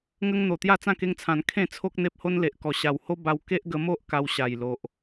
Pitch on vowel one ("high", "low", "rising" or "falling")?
high